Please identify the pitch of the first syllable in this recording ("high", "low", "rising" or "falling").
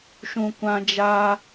low